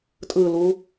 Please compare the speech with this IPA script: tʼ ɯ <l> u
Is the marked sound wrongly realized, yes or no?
no